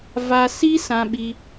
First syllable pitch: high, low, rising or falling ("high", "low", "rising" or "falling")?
high